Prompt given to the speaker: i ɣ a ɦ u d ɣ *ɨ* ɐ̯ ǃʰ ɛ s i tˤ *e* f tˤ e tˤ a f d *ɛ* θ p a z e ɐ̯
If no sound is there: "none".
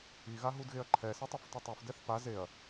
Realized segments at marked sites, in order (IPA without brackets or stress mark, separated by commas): e, e, ɛ